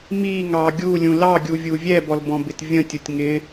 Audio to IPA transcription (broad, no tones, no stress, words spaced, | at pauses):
miŋɑ ɡʲulʲũ lɑɡʲuvʲu vʲɛbɔlbɔ̃bɪt vʲə̃tʲʊtʲ ŋɪ